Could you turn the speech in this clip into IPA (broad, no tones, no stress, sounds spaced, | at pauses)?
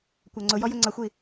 kʷ æ ŋ͡ǀ ʊ j ɔ j ʊ ŋ͡ǀ ʌ xʷ i